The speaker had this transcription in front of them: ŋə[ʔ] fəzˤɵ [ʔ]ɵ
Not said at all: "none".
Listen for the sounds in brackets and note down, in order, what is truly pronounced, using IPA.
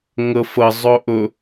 none, ʔ

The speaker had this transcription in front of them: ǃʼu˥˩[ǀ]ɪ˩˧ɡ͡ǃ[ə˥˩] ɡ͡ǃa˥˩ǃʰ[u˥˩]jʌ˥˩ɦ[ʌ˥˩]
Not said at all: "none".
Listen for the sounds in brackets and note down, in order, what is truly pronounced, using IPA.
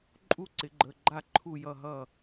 ǀ, ə˩˧˩, u˥˩, ʌ˥˩

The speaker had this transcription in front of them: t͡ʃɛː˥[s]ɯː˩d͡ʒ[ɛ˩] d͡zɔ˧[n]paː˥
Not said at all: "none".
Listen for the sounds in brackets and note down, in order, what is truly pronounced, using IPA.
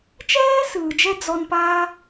s, ɛ˧, n

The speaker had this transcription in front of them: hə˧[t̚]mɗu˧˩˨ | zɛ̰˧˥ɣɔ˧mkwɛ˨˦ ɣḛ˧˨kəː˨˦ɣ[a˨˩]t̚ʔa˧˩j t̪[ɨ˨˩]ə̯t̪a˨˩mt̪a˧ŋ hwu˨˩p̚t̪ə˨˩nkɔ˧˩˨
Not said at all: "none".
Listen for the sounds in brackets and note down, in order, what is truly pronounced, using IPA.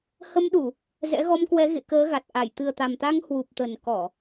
none, a˨˩, ɨ˨˩

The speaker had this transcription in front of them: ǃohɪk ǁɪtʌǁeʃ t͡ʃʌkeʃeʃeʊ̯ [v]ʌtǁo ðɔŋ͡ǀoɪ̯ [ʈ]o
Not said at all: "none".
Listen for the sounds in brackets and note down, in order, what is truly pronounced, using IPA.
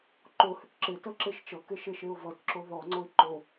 v, ǃ

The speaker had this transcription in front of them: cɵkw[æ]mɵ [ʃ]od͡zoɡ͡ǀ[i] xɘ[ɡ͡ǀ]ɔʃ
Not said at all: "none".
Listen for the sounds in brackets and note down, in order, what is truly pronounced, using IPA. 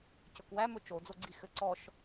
æ, t͡ʃ, i, ǀ

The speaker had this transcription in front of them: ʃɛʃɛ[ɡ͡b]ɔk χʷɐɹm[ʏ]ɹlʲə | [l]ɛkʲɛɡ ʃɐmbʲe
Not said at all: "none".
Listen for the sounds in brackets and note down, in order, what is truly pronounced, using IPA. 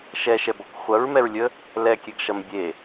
b, ɛ, l

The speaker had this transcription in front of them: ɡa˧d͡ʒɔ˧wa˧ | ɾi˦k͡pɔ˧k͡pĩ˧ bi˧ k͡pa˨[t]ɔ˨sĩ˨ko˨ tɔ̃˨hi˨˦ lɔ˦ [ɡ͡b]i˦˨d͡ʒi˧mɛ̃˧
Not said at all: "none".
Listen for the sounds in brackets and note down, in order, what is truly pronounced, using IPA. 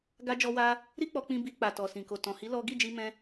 t, ɡ

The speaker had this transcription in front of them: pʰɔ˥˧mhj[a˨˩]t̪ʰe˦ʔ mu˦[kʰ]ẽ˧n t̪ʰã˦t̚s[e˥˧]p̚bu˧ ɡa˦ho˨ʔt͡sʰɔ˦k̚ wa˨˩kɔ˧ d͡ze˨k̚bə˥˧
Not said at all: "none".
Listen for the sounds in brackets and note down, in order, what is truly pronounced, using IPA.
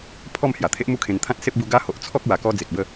a˨˩, kʰ, e˦

